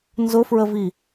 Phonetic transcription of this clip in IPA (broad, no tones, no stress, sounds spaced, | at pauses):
n z ʊ f ɹ ə v i